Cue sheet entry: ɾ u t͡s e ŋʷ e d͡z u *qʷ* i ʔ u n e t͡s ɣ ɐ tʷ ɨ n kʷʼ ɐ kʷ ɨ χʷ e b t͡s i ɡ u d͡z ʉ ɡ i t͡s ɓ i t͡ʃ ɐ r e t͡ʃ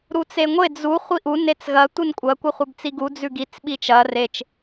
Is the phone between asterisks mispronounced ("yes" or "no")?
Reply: yes